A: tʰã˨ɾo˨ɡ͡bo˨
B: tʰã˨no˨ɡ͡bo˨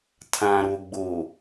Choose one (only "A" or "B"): A